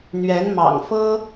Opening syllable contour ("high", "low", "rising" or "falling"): rising